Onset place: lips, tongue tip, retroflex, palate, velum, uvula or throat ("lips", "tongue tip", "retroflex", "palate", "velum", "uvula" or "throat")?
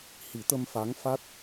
throat